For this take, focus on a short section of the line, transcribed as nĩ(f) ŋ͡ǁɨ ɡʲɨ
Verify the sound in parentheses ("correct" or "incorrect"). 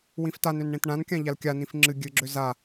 correct